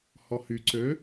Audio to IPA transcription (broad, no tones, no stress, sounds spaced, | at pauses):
h ɔ h y ǀ ø